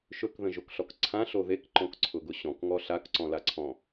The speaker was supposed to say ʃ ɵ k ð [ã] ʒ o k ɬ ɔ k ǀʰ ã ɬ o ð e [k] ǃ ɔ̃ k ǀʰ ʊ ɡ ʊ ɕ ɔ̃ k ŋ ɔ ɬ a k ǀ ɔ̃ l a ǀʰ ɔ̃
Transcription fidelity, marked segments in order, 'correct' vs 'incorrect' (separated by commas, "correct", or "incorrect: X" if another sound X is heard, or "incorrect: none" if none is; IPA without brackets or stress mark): incorrect: ə̃, correct